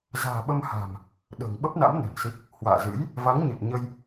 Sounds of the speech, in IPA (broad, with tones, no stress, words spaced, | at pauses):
za̤ː˨˩ɓə˧mha̤˨˩m | ɗə̤ː˨˩ŋɓə˦˥p̚na̰˧˥m nə̤˨˩nsi˦˥k̚ | hwa̰ː˧˨zɨ̰˧˥j | va˨˦ŋɲɨ˨˩t̚ɲə˧j